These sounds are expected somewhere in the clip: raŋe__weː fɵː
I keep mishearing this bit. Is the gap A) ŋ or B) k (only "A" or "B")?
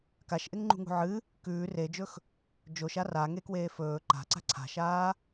B